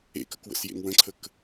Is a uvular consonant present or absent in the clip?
absent